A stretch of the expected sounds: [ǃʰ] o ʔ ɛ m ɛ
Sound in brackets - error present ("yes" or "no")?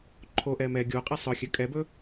no